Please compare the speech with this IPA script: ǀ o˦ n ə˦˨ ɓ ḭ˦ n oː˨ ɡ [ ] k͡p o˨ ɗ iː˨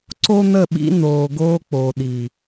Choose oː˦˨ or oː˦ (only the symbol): oː˦